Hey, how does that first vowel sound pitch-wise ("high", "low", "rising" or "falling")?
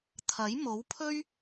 rising